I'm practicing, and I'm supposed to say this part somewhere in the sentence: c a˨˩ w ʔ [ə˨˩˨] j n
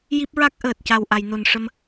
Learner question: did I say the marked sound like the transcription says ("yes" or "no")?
no